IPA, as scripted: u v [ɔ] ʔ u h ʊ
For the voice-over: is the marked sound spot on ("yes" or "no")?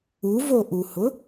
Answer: no